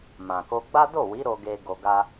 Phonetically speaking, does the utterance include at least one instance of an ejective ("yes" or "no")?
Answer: no